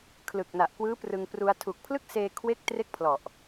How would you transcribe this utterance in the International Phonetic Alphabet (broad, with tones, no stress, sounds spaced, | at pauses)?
kʰ l ɯ˨˩ k̚ n a˨˩ ʔ k w ɯː˦˥ p r ɯ˧ ŋ p r u˧ a̯ tʰ u˨˩ k̚ pʰ l ɯ˥˩ k̚ s eː˧ kʰ w e˥˩ k̚ t r e˥˩ k̚ pʰ l ɔ˨˩ ʔ